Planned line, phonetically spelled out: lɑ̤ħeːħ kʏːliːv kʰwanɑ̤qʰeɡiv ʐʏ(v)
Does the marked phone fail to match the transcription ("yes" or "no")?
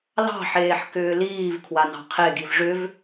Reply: no